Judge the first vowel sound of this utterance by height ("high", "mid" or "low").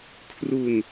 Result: high